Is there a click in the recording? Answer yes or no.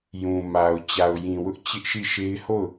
no